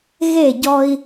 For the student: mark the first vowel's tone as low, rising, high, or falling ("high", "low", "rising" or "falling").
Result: falling